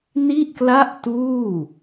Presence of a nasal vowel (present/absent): absent